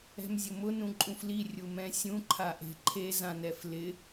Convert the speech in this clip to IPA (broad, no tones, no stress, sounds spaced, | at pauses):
ɛ̤ m zʲ ʊ m ʊ n ũ ǃʼ ũ f l i rʲ u m ɛ̃ sʲ ũ ǃʰ a ʔ e̤ ǃʰ e z ã n ɛ f l ɪ